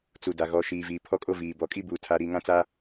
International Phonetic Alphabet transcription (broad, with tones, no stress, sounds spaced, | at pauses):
t͡s u˨ d a˨ ɣ ɔ˨ ʃ iː˨ v iː˨ pʰ ɔ˦ kʼ o˦ v iː˨ b ɔ˨ kʼ i˦ b uː˦ tʰ a˦ ɾ iː˦ ŋ ã˦ t͡s a˦